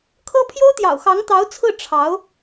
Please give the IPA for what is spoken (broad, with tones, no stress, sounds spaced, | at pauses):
kʰ ɤ˥ pʰ j o˥ ʊ̯ t̪ j ɑ̰˨˩ ʊ̯ x ɑ˧˥ ŋ t̪ ɑ˧˥ ʊ̯ t͡sʰ ɹ̩˥˩ ʈ͡ʂʰ ɑ˧˥ ʊ̯